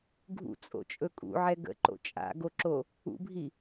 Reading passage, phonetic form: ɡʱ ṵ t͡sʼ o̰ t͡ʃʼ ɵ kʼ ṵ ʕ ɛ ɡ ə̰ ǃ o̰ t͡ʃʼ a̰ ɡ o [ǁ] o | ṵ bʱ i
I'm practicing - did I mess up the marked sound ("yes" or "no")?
no